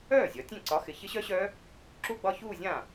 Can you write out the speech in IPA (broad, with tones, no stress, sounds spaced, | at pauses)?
œː˥˩ zʲ ɒ˩˧ tʲ ɛ̃˥˩ ǀ ɒ˨˥ x ɪ˩˧ ç ɪ˦˥ ɕ œ˦˥ ɕ œː˦˥ | ǁ u˥˧ ɡ͡b ɒ˥˧ ç uː˥˧ zʲ ãː˥˩